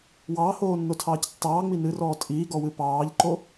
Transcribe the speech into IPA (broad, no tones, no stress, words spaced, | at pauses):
wɑːhoːnːotʰɑːc tːɑːŋ͡mi nɨrɔː tʼiːɡɔwɨ pɑːʎǃo